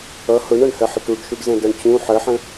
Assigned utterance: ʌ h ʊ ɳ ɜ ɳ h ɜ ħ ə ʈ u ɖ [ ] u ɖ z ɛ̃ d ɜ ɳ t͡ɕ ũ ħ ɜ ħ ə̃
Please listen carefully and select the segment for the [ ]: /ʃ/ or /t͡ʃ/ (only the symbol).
ʃ